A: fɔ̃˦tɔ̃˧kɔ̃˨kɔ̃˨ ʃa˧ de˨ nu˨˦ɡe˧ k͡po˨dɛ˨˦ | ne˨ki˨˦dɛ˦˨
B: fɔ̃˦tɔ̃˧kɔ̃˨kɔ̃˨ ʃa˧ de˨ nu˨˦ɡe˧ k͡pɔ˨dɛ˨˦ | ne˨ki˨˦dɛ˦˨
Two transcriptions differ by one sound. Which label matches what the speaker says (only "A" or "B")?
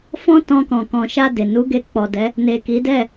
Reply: B